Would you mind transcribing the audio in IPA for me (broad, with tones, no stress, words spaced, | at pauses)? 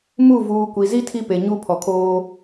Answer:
mu˦˨ vuː˨kʷi˨zi˦ tʰi˦pe˨ ɲu˦ pʰɔ˨kʰoː˦